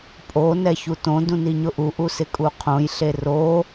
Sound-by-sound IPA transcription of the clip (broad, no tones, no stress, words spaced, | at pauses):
pʼo nɛçutõ dũniɲʊʔu ʔusɪkʼuqʰõj ɬero